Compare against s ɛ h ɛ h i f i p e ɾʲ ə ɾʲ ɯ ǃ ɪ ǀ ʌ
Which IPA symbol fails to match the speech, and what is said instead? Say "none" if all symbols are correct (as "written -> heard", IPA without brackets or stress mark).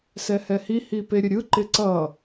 f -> h